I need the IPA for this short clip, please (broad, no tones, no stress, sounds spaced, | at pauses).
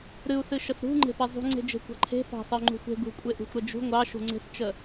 ɾ ɨ u̯ s ɨ ʃ ə s ɾ ṳ ŋ͡ǃ e̤ p e zˤ ṳ ŋ͡ǀ e̤ d͡ʒ e̤ kʷ ɑ̤ ǃʰ e̤ f ɑ̤ sˤ ə y̯ ŋ͡ǃ ṳ xʷ e̤ ɡ ṳ kʷʼ e ʔ ṳ xʷ ɾ ə d͡ʒ ṳ ŋʷ ɑ ʃ ṳ ŋ͡ǀ e̤ s t͡ʃ ə